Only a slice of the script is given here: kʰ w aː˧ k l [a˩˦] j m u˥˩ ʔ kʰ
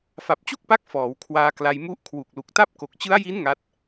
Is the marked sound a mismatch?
yes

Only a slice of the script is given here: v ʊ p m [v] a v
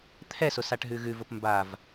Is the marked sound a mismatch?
yes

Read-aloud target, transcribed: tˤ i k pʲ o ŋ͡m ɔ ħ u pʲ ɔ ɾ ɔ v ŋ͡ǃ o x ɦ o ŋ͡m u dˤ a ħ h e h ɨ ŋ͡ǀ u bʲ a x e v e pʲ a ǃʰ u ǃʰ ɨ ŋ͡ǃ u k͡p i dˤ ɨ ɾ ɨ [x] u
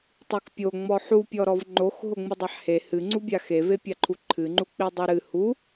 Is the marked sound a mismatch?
yes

